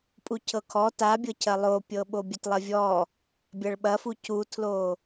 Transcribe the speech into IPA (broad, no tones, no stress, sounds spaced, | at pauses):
pʼ u cʰ ɤ kʰ ɔ t a bʲ ɤ cʰ ɐ lˠ o pʲ ɤ ɓ o bʲ ɐ t lˠ ɐ vʲ ɔ | bʲ ɐ ɭ ɓ ɐ f u c u tʰ l o